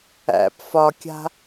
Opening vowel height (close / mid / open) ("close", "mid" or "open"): open